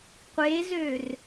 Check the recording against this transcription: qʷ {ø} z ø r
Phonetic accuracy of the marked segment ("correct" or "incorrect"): incorrect